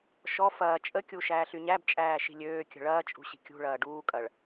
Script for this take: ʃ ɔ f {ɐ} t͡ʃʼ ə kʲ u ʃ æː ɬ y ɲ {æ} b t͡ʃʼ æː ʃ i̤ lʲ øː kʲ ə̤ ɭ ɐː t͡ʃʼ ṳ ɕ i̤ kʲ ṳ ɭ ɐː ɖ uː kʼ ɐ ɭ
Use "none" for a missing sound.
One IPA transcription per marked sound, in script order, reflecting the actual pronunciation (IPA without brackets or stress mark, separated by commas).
ɐː, æ